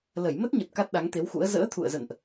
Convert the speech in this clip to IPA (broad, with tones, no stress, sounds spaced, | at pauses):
l ə˧˩ j m ə˦˥ t̚ ɲ ə˨˩ t̚ k a˦˥ t̚ ɗ a˨˦ ŋ t̪ e˨˦ w x ṵ˧˥ ə̯ z ə̰ː˧˥ t̪ʰ ṵ˧˨ ə̯ z ə̰˧˨ n ʔ